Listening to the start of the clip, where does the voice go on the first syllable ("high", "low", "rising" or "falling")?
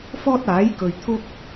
high